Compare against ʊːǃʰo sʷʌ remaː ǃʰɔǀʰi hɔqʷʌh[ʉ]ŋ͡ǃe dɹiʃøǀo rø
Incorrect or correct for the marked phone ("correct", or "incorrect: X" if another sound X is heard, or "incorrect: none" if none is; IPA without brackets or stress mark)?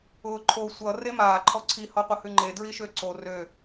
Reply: correct